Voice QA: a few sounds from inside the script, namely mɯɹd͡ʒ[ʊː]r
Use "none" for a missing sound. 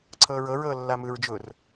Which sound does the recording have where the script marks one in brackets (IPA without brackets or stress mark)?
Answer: ʊː